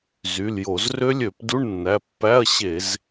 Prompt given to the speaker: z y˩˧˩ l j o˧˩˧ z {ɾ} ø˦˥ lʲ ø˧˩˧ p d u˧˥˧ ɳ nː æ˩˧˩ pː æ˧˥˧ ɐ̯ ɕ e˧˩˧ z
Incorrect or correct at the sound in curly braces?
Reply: incorrect: r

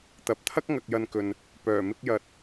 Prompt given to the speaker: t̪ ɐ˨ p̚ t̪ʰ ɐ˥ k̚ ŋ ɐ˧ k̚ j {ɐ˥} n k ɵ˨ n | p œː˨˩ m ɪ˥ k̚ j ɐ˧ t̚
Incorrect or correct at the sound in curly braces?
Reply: incorrect: ɐ˧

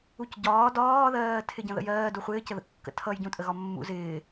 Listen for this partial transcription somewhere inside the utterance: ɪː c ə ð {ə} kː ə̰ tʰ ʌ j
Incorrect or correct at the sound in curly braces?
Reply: incorrect: ə̰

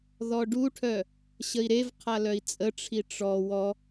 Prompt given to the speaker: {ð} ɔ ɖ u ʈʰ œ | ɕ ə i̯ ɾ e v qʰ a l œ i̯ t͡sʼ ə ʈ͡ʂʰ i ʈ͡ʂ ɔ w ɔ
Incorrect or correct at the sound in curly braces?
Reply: correct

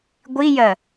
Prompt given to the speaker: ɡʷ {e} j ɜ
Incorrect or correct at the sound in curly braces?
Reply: incorrect: i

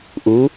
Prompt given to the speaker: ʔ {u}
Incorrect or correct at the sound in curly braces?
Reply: correct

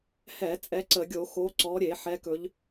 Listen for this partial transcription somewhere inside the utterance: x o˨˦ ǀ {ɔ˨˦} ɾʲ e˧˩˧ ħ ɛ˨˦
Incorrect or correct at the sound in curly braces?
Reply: correct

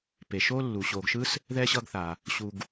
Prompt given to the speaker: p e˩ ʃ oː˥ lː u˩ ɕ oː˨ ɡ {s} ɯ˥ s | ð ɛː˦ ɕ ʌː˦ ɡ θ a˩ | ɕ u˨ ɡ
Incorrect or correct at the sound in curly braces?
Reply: incorrect: ʃ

